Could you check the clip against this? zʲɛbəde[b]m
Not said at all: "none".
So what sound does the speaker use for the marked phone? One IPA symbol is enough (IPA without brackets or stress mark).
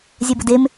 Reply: none